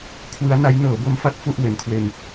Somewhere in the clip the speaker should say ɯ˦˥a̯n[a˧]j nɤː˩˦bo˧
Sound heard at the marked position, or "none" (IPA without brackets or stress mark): a˦˥